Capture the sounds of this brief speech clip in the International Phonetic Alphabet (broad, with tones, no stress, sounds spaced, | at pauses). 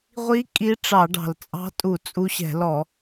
ʁʷ i˧˥ kʼ i˧˥ ʈ͡ʂ ɑ˧˩˧ ɖ ɑ̤˨˩ l t͡sʼ ɑ̤˧˥ tʼ u˧˩˧ t͡sʼ u˧˥ ɕ ɛ̤˧˩˧ l ɔ˧˩˧